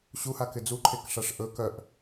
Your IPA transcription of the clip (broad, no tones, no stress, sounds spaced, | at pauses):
ɕ u h a k ɪ d͡z u ǃʰ e k ʂ a ʂ ʔ ɵ k œ ʔ